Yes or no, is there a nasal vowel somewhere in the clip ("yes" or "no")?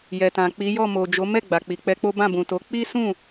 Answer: yes